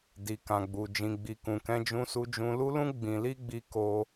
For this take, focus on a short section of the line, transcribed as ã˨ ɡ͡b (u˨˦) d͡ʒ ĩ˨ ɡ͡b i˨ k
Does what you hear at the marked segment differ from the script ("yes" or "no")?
yes